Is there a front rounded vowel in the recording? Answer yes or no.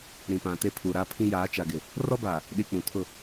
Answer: no